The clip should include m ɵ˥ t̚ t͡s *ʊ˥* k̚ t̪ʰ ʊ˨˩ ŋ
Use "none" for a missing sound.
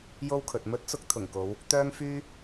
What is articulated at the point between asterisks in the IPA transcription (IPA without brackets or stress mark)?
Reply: ʊ˥